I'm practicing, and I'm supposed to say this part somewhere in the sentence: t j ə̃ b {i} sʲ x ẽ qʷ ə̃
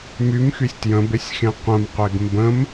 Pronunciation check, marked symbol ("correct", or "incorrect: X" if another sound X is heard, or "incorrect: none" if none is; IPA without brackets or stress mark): incorrect: e